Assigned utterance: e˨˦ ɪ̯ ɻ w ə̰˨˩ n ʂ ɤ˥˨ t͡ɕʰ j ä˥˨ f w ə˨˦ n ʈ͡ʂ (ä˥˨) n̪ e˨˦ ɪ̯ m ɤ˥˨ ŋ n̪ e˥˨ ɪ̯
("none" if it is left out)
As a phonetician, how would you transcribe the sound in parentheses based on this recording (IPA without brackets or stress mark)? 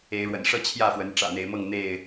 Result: ä̰˨˩